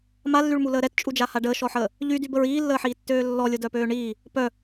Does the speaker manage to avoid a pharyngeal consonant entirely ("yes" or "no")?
no